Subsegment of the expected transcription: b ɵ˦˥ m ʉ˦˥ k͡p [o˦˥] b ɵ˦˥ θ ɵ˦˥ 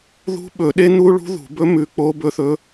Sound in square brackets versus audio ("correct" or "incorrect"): correct